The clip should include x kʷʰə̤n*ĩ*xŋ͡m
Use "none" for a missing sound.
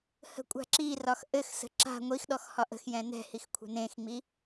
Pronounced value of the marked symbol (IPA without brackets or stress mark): ẽ